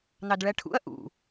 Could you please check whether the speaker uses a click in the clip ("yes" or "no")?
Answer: no